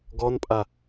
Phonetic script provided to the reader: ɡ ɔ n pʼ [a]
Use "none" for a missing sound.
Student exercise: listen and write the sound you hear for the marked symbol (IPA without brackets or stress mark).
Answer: a